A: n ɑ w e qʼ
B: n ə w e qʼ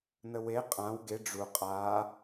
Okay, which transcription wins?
B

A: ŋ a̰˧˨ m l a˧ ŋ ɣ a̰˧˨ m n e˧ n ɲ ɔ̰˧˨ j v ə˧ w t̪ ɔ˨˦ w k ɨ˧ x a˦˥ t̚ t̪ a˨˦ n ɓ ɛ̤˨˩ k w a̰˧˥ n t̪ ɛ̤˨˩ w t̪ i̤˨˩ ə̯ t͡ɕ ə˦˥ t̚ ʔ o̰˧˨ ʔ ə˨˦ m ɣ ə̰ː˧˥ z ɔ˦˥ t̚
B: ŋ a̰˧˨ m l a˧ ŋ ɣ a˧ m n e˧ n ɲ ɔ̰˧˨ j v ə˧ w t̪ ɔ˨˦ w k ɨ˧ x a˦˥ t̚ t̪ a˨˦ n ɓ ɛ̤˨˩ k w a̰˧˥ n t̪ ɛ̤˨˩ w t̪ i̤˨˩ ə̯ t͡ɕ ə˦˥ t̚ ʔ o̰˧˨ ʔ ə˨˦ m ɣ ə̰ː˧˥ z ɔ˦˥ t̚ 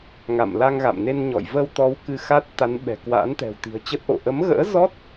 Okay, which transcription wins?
A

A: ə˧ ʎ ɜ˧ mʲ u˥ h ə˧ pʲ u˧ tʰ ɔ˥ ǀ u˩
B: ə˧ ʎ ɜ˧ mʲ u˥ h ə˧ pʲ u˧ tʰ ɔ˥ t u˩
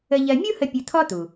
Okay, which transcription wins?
B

